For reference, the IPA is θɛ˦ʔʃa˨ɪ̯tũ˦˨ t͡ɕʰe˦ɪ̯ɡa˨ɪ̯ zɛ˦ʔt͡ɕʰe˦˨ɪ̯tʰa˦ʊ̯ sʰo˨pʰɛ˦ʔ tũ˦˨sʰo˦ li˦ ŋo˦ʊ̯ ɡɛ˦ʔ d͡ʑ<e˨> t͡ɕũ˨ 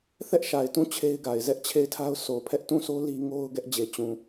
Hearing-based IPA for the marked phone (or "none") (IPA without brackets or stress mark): e˨